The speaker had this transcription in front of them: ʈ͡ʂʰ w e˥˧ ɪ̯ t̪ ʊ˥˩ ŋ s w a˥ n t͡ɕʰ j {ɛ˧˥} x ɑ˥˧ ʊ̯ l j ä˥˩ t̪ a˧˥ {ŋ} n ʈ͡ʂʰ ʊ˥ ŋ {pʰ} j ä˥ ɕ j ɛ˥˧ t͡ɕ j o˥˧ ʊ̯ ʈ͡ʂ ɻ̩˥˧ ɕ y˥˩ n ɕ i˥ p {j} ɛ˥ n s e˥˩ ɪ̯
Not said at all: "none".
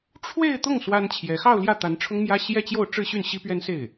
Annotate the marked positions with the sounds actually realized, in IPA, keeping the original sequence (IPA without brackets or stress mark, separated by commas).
ɛ˧˥, none, m, ɥ